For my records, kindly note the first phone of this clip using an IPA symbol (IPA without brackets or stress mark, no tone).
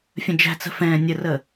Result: fʲ